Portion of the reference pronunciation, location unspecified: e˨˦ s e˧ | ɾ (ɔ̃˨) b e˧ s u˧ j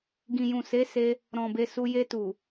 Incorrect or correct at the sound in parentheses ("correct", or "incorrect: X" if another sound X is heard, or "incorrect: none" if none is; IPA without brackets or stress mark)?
correct